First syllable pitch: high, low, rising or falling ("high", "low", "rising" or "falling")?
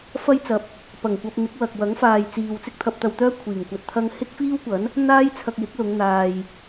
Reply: high